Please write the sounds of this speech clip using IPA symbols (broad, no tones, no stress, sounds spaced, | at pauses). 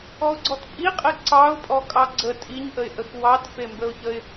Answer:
ɔ ʊ̯ ɡ͡ǀ ɔ t pʼ i qʼ e ǀ ɑ ʊ̯ pʼ ɔ kʼ ɑ ɡ͡ǀ ə tʼ i ɲ ʔ ə ɪ̯ ʔ ə x w ɑ t f e m b ə ʊ̯ ç ə ɪ̯